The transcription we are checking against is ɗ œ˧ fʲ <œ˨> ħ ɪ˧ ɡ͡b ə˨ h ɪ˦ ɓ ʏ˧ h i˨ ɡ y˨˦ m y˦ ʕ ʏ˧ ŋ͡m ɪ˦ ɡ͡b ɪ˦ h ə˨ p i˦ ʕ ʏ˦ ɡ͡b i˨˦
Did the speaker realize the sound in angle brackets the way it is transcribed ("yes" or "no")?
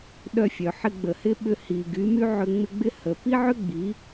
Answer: yes